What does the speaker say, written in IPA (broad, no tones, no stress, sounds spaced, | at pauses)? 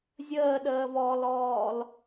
zʲ əː ɗ əː v ɔː l ɔː l